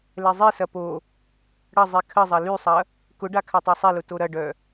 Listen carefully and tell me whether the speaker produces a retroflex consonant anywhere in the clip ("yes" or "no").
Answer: yes